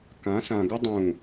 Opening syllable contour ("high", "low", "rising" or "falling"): rising